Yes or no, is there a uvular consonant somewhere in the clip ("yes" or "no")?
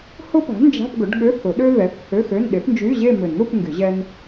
no